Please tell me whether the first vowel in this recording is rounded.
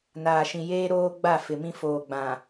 no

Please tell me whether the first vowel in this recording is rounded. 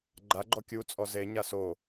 no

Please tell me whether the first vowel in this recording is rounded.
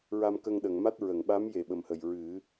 no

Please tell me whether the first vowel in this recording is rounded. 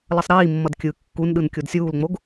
no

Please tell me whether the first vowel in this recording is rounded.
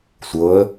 no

